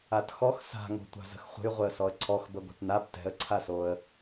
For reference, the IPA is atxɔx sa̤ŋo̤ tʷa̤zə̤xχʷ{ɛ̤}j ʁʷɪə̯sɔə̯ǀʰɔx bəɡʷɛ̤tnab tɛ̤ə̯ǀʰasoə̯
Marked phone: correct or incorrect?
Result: incorrect: ə̤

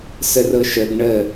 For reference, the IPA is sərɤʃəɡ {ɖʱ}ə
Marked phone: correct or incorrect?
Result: incorrect: ɳ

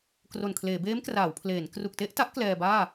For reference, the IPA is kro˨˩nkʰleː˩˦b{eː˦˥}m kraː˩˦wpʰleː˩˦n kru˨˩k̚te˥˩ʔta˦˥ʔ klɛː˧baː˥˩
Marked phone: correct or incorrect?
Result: correct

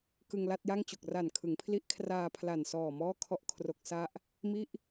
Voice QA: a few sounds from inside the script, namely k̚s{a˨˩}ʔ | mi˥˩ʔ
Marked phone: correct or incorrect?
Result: incorrect: a˥˩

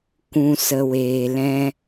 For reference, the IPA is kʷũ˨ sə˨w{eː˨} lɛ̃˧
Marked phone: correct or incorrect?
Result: correct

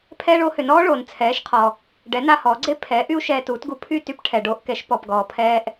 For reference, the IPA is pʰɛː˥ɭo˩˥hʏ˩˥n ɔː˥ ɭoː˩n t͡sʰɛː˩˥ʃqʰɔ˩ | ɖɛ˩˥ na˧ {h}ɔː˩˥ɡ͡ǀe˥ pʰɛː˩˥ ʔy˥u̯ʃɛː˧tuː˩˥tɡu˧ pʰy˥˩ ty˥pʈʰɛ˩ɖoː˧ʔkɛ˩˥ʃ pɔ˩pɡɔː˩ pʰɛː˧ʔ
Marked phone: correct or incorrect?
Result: correct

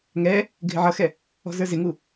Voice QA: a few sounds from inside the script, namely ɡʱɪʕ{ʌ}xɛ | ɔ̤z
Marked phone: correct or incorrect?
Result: correct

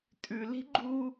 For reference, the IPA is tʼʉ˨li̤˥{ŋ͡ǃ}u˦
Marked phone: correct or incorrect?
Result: incorrect: ɡ͡ǃ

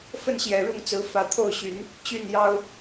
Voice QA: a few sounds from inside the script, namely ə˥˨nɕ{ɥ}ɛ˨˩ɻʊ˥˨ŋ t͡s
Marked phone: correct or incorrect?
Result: incorrect: j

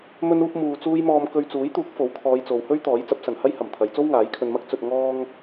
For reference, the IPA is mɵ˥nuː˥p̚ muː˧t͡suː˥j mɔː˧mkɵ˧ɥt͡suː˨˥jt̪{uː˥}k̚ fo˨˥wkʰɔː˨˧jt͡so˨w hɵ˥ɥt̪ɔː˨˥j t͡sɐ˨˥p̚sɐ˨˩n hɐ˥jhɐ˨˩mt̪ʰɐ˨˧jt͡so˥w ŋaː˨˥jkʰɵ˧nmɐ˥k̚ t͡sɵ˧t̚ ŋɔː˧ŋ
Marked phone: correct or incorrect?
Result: incorrect: uː˨˥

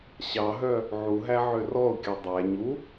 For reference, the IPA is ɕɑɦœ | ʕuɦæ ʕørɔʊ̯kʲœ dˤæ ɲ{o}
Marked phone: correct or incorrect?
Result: incorrect: u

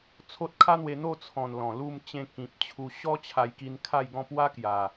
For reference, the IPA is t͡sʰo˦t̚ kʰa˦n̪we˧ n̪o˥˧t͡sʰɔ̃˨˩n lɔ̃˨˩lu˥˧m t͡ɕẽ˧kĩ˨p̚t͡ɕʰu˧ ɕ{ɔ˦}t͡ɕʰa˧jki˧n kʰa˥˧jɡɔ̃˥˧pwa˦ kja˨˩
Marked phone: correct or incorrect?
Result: correct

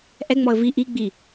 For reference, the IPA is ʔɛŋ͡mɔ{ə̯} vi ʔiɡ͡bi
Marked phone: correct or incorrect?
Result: correct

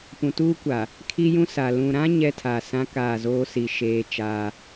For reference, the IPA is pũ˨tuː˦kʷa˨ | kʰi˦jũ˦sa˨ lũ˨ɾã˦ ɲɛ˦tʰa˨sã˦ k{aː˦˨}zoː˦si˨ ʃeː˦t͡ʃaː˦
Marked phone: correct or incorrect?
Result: correct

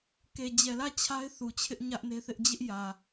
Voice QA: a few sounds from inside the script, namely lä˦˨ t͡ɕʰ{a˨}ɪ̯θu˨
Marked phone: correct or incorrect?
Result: incorrect: a˦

